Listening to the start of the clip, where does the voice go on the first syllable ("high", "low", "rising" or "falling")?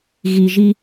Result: low